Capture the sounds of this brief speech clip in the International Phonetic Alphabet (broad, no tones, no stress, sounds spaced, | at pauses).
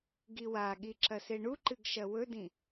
ɡ i w a ɠ i ǁ ɐ s e ɳ u ǃ ɨ ɡ ʃ ɐ w ɵ d ĩ